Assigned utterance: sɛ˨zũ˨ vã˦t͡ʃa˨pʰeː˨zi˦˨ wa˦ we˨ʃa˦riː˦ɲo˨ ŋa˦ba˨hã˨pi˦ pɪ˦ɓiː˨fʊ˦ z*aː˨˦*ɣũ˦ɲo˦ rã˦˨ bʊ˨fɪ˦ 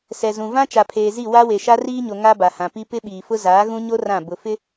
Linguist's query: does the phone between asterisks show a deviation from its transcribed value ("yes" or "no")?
no